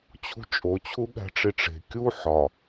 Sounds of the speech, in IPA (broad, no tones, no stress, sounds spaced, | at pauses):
t͡ɕʰ ṳ t͡ʃʼ o t͡ɕʰ u ɠ æ̤ ʈ͡ʂ i ʈ͡ʂ e̤ kʲ u ħ ɒ